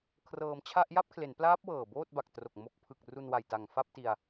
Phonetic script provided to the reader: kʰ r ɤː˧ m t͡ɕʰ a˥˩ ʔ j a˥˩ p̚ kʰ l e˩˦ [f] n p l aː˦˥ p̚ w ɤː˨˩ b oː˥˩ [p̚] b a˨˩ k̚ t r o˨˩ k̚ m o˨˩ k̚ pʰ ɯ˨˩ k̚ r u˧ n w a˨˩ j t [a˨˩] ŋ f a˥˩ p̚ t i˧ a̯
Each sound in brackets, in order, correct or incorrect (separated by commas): incorrect, incorrect, correct